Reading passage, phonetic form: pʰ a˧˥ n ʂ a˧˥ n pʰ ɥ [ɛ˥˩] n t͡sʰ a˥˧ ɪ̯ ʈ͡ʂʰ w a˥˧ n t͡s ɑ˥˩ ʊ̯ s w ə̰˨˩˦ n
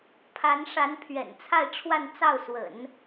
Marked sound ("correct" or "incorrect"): incorrect